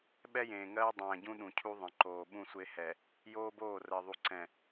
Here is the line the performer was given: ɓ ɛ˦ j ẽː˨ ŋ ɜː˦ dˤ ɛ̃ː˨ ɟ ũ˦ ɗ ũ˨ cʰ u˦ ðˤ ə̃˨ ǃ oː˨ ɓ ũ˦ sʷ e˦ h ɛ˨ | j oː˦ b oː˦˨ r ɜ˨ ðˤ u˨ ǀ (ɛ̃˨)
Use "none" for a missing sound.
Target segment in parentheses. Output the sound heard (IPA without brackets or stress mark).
ɛ̃˨